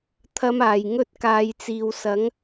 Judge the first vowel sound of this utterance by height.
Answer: low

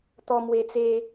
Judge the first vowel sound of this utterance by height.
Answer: mid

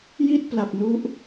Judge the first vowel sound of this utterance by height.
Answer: high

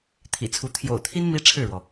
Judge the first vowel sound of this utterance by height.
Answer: high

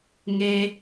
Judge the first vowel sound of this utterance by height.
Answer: mid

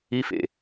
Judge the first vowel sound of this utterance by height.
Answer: high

